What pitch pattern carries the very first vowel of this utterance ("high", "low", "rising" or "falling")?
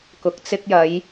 rising